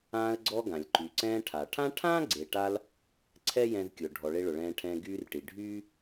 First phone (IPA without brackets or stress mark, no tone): ãː